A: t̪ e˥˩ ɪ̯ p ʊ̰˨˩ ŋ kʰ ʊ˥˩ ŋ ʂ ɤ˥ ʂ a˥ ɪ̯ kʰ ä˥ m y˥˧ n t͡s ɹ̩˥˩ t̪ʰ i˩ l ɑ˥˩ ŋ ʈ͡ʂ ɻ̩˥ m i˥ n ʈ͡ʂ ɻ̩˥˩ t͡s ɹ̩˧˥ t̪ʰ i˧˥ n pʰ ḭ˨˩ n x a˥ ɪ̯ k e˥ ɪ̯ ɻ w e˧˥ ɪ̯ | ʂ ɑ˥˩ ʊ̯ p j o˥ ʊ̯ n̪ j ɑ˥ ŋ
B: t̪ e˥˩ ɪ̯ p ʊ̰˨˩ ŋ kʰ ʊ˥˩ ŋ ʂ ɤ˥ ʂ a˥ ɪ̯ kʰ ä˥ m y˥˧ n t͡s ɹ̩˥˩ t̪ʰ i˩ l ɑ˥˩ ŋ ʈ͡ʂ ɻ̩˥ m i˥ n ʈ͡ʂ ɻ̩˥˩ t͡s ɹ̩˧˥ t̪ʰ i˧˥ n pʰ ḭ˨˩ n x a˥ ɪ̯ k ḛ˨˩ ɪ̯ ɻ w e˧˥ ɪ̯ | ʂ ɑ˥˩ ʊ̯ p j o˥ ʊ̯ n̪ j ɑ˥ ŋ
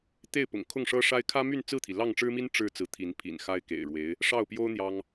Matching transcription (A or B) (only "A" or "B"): B